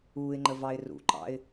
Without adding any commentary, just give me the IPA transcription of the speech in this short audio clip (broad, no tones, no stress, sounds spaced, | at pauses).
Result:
uː ɪ̯ ŋ͡ǃ ə v ɑ ɪ̯ r ṵ ǃ ɑ̰ ɪ̯